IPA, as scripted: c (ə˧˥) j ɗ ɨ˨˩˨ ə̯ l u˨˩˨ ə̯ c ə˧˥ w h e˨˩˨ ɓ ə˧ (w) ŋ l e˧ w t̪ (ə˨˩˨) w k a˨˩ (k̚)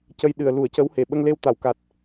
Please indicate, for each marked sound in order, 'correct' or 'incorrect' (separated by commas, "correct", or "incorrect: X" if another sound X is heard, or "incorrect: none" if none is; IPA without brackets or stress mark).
incorrect: ə˧, incorrect: none, incorrect: a˨˩˨, incorrect: t̚